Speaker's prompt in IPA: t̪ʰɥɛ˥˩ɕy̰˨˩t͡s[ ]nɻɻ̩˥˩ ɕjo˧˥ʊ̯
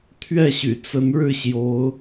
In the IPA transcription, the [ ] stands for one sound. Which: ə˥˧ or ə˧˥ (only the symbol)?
ə˧˥